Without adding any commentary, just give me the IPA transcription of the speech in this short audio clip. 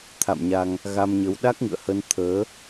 t̪ʰ a̰˧˨ m ɲ a˧ ŋ | ɣ a˧ m ɲ ə˨˦ w ɗ a˦˥ k̚ ŋ ɨ̰˧˨ ə̯ h ə˧ n t̪ʰ əː˨˦

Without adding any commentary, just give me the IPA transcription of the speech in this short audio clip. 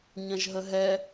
ɲ ɐ̃ ʒ ɦ ə ɦ ɛ

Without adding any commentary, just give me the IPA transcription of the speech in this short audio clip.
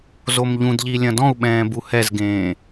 z o m ʎ ũ d ʎ i lʲ ɐ̃ d ɔ̃ u̯ ɓ ɛ̃ː b u h ɛ z ɡ ẽː

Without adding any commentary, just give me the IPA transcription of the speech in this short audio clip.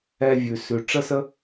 ɛ˧ vʲ ʉ˨ s ʉ˨ ʈ͡ʂ ə˦ s ə˦

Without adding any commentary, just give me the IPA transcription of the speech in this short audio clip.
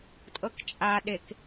tʼ ɤ k t͡ʃʼ a ɗ e k

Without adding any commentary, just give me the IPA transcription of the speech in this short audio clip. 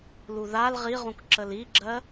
l u ð a l ʁ i ʁ ũ k ǁ ə l i ɡ͡ǁ ɜ

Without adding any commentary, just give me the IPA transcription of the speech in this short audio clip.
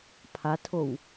pʰ a tʰ o w

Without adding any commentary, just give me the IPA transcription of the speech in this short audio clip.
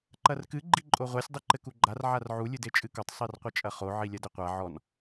ǃ ɐ r k ɨ ɡ͡ǃ i ǃʼ o ʁʷ ɛ sʲ dˤ i ǃ ɘ k u ɡ͡ǃ a r ʕ a r ʕ u lʲ ɨ d e t͡ʃʼ ɨ k o tˤ sˤ i r qʷ ɘ t͡ʃʼ ɐ χ o ʕ i lʲ ɐ d ɘ qʷ a ʕ ɔ n

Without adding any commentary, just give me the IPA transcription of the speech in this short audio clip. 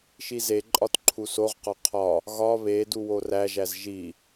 ʃ i z e ǃʼ ɒ t ǃʰ u s o ʁ q ɒ qʰ ɒ | ɣ ɒ β e d u w o r æ ʒ æ z ʒ i

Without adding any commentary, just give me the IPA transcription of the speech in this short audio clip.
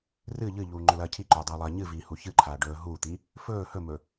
r ɨ ʎ ɨ ʎ uː ŋ͡ǃ ɵ l ɐː cʰ i ǃ ɵː dˤ ɐː lˠ ɐː ɲ ɨ v iː h u ç ɨ ǃʰ aː ɖ ɵː ɦ uː t̪ i | f ɵː h ɵ m ɵ

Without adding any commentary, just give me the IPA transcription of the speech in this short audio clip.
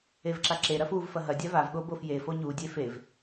e v ǁ a ǁ e ɾ ɐ f u v f ɐ ɦ ɐ dʲ a v a v ɠ o b o f j e f o ɲ u dʲ e f e v

